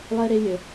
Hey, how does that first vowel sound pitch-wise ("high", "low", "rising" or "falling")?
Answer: high